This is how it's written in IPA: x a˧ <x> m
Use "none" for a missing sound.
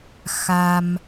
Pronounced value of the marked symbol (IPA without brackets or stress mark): none